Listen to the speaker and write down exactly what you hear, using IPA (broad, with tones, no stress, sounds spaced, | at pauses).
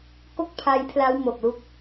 k o˥˩ k̚ pʰ a˦˥ j pʰ l a˦˥ w m o˨˩ k̚ l u˦˥ k̚